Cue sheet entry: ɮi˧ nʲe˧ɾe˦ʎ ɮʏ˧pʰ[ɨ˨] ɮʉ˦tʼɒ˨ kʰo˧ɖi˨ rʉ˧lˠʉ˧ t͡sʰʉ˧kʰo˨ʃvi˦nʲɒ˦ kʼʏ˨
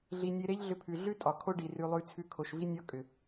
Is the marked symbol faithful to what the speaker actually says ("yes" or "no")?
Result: no